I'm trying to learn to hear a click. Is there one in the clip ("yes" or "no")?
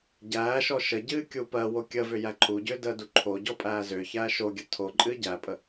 yes